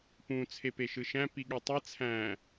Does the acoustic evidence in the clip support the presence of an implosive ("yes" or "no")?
yes